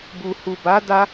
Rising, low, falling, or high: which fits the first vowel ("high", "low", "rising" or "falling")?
low